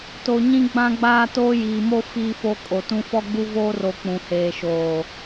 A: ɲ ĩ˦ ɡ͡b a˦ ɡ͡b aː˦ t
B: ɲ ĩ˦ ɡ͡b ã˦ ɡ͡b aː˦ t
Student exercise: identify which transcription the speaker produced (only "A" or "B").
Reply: B